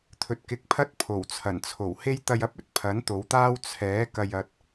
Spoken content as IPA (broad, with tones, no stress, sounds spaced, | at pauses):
t̪ʰ ɵ˨ t̚ k ɪ˨˥ k̚ pʰ ɐ˥ t̚ pʰ o˨˩ w t͡sʰ ɐ˨˩ n t͡sʰ o˨˩ w h e˥ j t̪ ɐ˧ j ɐ˥ p̚ ɵ˧ t̚ pʰ ɐ˨˥ n t̪ o˨˧ w t̪ aː˥ w t͡sʰ ɛː˨˥ k ɐ˨ j ɐ˨ t̚